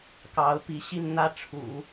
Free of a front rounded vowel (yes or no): yes